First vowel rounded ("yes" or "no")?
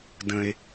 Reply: no